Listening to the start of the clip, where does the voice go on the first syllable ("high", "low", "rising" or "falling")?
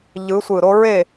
rising